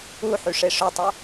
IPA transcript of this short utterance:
u ħ y ʂ e ʂ œ tˤ œ

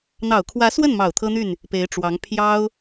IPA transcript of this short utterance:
n̪ ɑ˨˩ ʊ̯ kʰ w ä˧˥ s w ə˥˩ n m ɑ˨˩ ʊ̯ t̪ʰ ɤ˥ n̪ y˥˩ n | p e˧˥ ɪ̯ ʈ͡ʂ w ɑ˧˥ ŋ pʰ j ɑ˥ ʊ̯

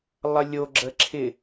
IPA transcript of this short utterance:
lˠ ʌ lʲ o ɡ͡ǁ ə ǁʰ ɪ

